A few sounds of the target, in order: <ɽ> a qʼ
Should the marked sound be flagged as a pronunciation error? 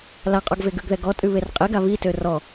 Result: yes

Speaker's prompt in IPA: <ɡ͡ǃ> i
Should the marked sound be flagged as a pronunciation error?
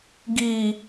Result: yes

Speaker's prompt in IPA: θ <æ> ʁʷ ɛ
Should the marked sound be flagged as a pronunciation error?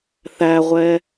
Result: no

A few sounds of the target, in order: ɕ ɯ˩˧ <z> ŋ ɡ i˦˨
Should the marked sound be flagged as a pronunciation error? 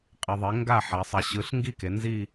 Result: yes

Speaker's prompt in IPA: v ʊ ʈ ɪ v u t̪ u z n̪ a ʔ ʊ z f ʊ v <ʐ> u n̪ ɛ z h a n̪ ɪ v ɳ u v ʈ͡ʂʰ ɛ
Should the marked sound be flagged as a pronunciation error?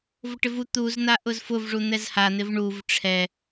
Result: no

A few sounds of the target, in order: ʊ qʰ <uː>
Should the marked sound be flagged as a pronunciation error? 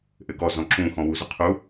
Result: yes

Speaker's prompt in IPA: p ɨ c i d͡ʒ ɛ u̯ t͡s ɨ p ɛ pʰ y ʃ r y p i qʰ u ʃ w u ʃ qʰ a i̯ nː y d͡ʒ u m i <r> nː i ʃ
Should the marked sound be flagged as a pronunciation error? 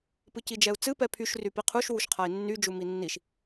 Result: yes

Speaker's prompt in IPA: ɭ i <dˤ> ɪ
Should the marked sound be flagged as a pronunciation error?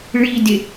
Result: yes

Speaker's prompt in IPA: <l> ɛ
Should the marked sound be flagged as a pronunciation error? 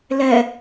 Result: no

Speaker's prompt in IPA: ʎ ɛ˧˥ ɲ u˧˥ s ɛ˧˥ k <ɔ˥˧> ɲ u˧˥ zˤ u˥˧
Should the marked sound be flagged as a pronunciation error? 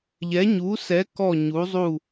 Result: no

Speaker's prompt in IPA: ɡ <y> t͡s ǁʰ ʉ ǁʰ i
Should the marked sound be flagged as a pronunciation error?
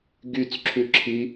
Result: no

